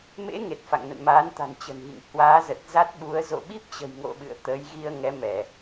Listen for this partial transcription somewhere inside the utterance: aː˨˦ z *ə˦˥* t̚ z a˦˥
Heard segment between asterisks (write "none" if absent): ə˨˩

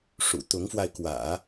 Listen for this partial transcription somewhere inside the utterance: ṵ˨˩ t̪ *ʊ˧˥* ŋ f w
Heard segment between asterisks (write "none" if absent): ʊ˧˥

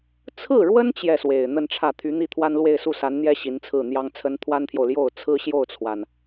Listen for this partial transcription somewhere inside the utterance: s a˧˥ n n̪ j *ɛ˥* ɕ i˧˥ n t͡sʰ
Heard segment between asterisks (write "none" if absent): ɛ˥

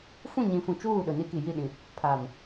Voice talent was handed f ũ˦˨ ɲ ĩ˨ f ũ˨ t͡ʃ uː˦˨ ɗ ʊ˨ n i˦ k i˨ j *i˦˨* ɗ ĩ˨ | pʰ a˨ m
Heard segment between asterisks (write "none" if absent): i˦˨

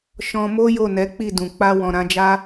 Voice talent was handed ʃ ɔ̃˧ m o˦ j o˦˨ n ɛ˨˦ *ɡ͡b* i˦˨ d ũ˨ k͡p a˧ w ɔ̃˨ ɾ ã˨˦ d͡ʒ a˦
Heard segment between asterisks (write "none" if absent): k͡p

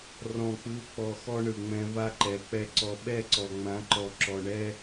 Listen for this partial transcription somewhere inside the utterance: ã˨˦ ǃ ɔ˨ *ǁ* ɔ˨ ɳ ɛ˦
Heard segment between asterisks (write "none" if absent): ǁ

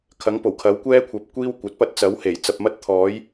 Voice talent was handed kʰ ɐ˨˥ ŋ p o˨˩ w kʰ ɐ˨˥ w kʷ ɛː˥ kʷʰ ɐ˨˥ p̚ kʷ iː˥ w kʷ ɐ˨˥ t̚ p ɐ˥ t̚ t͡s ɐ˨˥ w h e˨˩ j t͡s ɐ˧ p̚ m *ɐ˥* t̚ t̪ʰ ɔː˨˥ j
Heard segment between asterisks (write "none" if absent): ɐ˥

